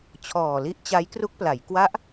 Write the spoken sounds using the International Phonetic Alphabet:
t͡ɕʰ ɔː˨˩ l i˦˥ ʔ t͡ɕ a˦˥ j k r u˦˥ k̚ p l a˩˦ j k w a˦˥ ʔ

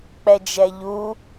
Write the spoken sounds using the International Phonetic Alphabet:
k͡p ɛ d͡ʒ ɛ ʎ u

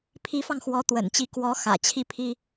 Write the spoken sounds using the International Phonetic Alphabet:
pʰ i˧˥ f ɑ˧ ŋ x w ɔ˧˥ t̪ w ə̰˨˩ n t͡ɕ i˧˥ k w ɔ˧˥ x ä̰˨˩ t͡ɕʰ i˥˩ pʰ i˥

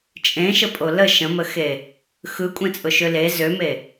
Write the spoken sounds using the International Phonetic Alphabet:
t͡ʃʼ ẽ ʃ ə pʼ o l ə ʃ ə̃ m ə x e | x ɯ kʷʼ ẽ t͡sʼ ʊ ʃ ø l e z ø m e

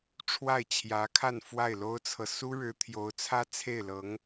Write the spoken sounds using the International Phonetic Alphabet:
ʈ͡ʂʰ w a˥˩ ɪ̯ t͡ɕʰ j ä˧˥ kʰ a˥˧ n f w a˥˩ ɪ̯ l o˥ ʊ̯ t͡sʰ ɤ˨ s u˥ ɻ ɻ̩˧˥ t̪ʰ j o˧˥ ʊ̯ t͡sʰ ä˥ t͡sʰ e˥˩ ɪ̯ l ɤ˧˥ ŋ

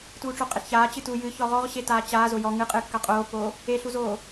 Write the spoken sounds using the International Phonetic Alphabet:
t uː ʈ͡ʂ o qʼ e ɬ ç aː t͡ɕ ɨ t u j ɨ ç ɔ ʁ ɔ ʁ ɕ e t aː t͡ɕ aː z o j ɔ ŋ ɨ qʼ ɨː kː a qʼ oː pː oː | e ɬ u z oː

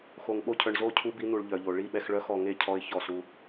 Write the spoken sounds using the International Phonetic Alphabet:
x o˨ ŋ ɓ o˧ cʰ œ˨ ɳ z o˦˨ cʰ u˧ b i˧ n̪ u˨ ɭ ʎ œ˨ ʎ o˨ ɭ i˦˨ ɓ ɛ˧ x ɭ œ˦ x ɔ˧ ŋ e˦˨ cʰ ɔ˧ ɪ̯ ç ɔ˦˨ s u˦

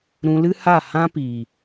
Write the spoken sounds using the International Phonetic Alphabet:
ɾ ũ˧ l ɨ˦ h a˦˨ h ã˦ p iː˨

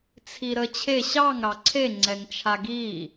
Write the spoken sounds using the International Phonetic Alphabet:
t͡sʰ i ɾ ə t͡ɕʰ e ɕ ɑ ŋ ɾ ɑ ǀʰ e ŋ͡ǀ ɛ ŋ t͡ʃʰ a ɡ i

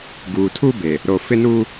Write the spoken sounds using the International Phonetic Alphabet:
ɡ uː˨ tʰ u˦ b e˨ | ɾ o˨ f ɪ˦ n uː˦

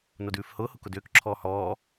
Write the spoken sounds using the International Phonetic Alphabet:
n o d ʉː f h ʊː h ʊ k ʊ d ʏː k ǁʰ ɔː h ɔː

